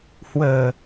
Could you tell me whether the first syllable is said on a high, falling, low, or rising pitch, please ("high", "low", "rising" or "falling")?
low